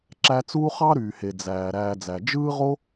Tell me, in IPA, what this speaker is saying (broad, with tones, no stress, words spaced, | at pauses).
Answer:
ǁæ˦t͡suː˥ χɑ˥ɾyː˩he˩ d͡zæː˩ ɾæː˨d͡zæ˩ d͡ʒɯː˥ʁo˥